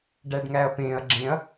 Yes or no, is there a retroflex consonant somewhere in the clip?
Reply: yes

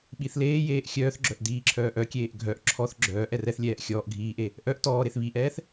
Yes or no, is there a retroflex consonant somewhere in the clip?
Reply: no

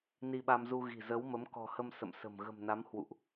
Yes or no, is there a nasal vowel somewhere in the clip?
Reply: no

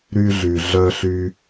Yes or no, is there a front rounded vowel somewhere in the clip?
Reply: yes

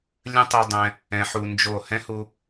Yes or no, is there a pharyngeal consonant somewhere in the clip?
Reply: yes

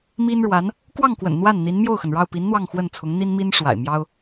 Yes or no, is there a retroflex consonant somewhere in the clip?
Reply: yes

